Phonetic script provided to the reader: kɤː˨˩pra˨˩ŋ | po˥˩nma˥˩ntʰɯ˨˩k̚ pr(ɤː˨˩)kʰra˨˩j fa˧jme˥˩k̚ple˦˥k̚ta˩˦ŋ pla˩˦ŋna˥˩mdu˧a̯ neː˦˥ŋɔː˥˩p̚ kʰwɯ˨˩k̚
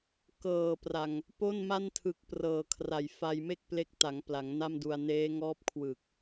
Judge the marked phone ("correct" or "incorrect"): correct